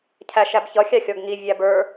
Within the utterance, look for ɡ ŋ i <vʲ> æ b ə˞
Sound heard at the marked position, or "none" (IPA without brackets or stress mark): vʲ